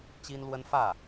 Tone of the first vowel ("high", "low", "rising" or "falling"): high